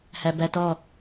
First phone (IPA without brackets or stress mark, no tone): h